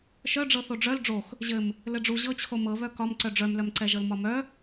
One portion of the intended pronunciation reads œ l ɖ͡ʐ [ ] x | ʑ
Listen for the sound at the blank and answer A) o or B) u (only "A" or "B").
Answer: A